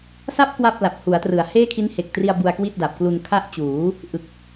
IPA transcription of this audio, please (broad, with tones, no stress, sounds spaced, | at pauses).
s a˦˥ p̚ k w a˥˩ p̚ l a˨˩ p̚ h u˩˦ a̯ t r ɯ˩˦ a̯ h eː˥˩ kʰ i˦˥ n h e˨˩ k̚ t r i˧ a̯ b u˧ a̯ k w i˥˩ t̚ d a˨˩ p̚ k l u˧ n kʰ a˦˥ ʔ t͡ɕ uː˩˦ | ʔ ɯ˨˩ k̚